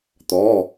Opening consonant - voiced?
no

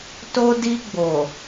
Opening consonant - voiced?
no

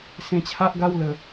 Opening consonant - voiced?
no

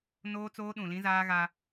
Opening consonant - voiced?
yes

